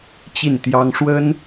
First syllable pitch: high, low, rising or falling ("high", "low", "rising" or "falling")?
falling